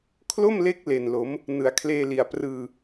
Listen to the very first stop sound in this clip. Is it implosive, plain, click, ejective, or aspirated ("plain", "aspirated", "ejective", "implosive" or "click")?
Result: aspirated